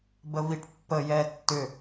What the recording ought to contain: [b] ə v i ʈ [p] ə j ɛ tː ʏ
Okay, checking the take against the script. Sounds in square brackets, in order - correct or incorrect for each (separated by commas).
correct, incorrect